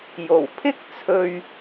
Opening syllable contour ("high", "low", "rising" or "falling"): low